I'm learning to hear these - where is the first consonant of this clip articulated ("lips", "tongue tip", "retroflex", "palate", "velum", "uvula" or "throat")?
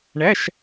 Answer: retroflex